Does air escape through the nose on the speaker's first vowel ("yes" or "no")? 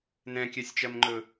yes